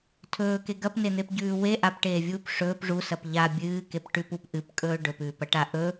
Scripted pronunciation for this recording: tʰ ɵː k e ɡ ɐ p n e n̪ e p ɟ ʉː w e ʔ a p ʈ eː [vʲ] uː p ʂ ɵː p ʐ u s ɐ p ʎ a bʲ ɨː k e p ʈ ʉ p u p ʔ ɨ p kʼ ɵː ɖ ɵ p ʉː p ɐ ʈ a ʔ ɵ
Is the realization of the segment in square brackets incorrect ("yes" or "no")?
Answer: no